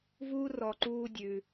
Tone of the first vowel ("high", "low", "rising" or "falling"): high